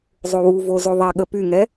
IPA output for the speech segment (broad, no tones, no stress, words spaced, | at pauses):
zˤowuvo zoðˤɛɠə pyŋɛ